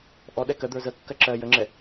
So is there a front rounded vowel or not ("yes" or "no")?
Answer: no